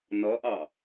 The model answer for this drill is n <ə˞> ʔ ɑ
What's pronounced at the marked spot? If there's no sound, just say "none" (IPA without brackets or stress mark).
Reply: ʌ